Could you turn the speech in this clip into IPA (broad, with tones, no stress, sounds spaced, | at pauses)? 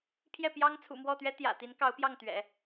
pʰ j ɛ˥˩ p j ɑ˥ ŋ t͡sʰ ṵ˨˩ m w ɔ˥˩ t̪ ɥ ɛ˥ t̪ j ä̰˨˩ t̪ i˧˥ n k ɑ˧˥ ʊ̯ p j ɑ˥˩ ŋ t̪ ɥ ɛ̰˨˩˦